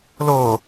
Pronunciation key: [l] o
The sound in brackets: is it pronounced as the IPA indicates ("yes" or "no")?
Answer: yes